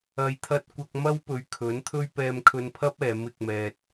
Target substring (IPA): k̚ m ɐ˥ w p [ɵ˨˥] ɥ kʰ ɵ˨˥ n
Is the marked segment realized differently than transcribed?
yes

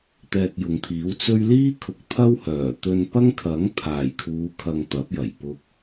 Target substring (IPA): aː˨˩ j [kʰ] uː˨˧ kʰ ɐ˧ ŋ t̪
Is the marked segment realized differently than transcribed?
no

